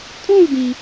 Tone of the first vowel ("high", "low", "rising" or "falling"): falling